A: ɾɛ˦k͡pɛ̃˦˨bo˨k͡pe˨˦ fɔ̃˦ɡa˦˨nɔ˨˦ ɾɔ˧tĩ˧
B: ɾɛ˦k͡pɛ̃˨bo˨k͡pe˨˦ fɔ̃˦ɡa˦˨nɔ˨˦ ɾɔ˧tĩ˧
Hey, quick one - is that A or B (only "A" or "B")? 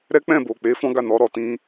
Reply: A